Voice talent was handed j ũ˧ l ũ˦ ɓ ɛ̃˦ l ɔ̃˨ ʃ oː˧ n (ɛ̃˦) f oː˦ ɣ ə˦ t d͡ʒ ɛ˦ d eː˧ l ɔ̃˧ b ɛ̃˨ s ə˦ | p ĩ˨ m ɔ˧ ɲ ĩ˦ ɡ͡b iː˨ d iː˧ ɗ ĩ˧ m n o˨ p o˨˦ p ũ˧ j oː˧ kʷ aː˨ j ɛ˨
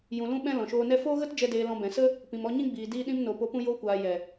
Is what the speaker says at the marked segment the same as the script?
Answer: no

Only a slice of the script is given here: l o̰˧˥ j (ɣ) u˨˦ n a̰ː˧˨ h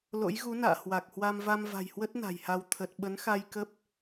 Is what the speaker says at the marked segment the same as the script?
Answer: yes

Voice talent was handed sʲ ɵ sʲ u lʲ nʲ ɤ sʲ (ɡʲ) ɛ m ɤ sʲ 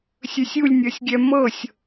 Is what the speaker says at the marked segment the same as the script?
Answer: yes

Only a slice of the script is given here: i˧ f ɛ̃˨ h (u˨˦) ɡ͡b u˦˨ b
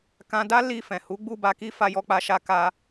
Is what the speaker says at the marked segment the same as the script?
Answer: yes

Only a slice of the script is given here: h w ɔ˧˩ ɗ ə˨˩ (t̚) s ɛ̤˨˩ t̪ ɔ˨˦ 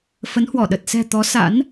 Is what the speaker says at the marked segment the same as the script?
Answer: yes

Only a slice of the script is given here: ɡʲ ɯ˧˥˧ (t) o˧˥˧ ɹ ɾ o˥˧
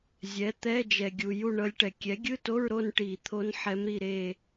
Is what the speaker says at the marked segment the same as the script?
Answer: yes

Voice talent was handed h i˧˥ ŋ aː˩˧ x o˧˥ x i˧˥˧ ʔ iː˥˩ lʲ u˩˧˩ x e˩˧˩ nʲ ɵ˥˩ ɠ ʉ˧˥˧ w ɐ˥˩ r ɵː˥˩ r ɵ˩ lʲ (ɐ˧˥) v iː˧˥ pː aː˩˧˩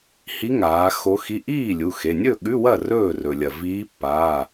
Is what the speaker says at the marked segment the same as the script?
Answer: no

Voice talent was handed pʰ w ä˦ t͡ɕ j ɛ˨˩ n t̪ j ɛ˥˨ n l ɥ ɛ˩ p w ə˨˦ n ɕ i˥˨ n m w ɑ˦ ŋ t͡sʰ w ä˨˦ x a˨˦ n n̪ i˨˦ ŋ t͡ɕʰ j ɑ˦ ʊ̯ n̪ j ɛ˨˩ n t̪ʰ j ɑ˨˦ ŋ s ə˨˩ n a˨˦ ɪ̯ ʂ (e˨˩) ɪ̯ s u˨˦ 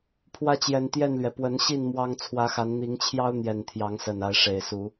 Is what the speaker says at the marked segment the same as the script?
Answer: yes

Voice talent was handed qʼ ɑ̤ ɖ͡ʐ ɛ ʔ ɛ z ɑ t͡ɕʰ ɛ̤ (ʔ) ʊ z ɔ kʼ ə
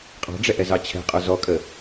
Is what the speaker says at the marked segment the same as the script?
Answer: no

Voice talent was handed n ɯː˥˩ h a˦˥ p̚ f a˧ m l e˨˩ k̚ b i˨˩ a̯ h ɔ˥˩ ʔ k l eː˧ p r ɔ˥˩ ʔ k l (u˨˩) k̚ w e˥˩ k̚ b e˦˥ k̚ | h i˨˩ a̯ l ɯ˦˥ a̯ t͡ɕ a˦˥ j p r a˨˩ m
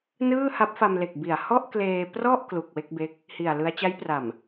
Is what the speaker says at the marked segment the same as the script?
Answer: yes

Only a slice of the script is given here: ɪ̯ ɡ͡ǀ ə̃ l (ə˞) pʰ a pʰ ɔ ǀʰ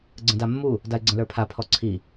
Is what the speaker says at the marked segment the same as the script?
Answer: yes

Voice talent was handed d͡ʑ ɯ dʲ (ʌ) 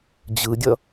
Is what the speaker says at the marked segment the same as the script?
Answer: yes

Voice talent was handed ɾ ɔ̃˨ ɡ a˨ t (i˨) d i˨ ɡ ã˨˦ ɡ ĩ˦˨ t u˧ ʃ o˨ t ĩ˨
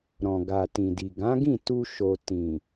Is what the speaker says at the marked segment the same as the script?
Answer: no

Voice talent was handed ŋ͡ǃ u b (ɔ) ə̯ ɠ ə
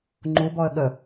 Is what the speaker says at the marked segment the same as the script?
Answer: yes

